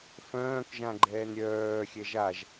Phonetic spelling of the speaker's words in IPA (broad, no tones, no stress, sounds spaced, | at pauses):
f œ̃ː k ʒ ã ɡ͡ǃ ɛː n ɾʲ œː xʲ ɛ ʒ a ʒ